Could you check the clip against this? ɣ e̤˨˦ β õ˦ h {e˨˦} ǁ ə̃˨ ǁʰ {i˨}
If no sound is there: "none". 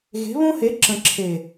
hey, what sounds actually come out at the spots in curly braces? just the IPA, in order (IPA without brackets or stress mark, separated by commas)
e˨˦, e˨